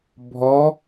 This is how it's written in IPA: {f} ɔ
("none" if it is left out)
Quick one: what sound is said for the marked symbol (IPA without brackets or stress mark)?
bʱ